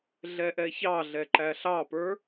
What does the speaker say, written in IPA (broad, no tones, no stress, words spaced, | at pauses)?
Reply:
ɮɛʔɛçɑɮɛ ǃæɬɑpə˞